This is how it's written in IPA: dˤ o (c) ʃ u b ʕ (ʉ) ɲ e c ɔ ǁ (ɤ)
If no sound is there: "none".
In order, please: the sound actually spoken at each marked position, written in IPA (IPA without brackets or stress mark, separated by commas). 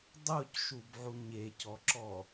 c, u, ɔ